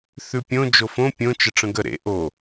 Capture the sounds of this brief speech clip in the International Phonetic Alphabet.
θ ʉ pʲ õ d͡ʒ o f õ pʲ õ t͡ʃ ə ʈ͡ʂ ə̃ ɡ ə ɾ ḛ ʔ o

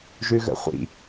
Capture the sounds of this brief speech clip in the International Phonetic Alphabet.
ʒ ʉ ɣ ə̰ χʷ ḭ

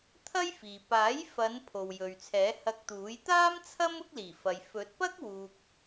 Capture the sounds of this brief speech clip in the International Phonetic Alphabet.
t̪ʰ ɐ˥ j f iː˨ p aː˨˥ j f ɐ˨˧ n pʰ o˨ w j ɵ˨ ɥ t͡sʰ ɛː˨˥ h ɐ˧ k̚ t̪ uː˨˥ j t̪ aː˥ m t͡sʰ ɐ˥ m ʊ˥ k̚ l iː˨˩ f ɐ˨ j f ɵ˨˥ t̚ p ɐ˥ k̚ w uː˧ k̚

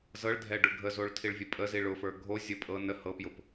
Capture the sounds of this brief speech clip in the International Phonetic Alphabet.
z ɤ ɭ dʱ ɛ ɖ ʊ ɡʱ ə z o ɭ tʰ i ɭ vʲ ə pʼ ə z i ɭ ʊ f ə˞ ɡʱ o zʲ ɤ pʼ ɤ n ə h ɤ p j ʊ p

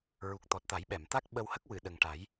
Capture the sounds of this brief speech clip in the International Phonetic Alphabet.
ɹ u˨˩ k̚ t̪ ɔ˨˩ t̚ t̪ a˨˩˦ j ɓ ɛ˨˩˨ m t̪ a˦˥ k̚ ɓ ə˧ w h ə˦˥ k̚ w ɨ˨˩˨ ɗ ə˨˩ ŋ ʈ a˨˩˦ j

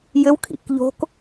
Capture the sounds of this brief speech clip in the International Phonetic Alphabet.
j ɘ w kʰ ḭ k ʎ o̤ k

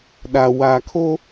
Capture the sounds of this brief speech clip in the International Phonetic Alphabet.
ɗ a˨ w a˨ kʰ o˦

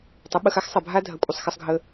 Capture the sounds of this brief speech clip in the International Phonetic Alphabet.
tˤ ɘ˨˦ ɓ ə˧ x a˦ x sˤ ɐ˨ bʱ a˦ dʱ ɐ˨ kʷʼ ə˨ sˤ x ə˧ sˤ ɡʱ ə˧

